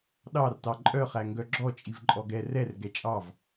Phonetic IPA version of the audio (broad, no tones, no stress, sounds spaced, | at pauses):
ɗ ɑ r t ɑ ǃʼ œ χ æ ŋ ɡ œ ɡ͡ǁ ɔ t͡ʃʼ i v ǃʼ ɔ ɡ ɛ r ɛ r ɡ ɛ t͡ʃʼ ɑ v